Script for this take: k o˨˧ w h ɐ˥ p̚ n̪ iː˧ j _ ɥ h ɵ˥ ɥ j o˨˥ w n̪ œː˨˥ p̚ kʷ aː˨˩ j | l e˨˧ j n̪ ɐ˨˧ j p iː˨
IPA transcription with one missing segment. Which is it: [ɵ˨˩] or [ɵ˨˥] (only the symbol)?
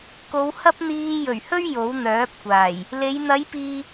ɵ˨˩